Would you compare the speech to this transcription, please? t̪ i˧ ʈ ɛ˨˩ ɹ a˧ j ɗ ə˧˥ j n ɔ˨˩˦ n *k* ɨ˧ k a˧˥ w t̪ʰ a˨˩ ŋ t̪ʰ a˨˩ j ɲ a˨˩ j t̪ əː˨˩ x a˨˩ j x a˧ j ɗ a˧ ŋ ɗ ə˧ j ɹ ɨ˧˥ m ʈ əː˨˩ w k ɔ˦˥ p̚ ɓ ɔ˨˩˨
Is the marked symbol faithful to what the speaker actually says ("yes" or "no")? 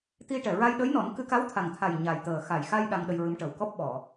yes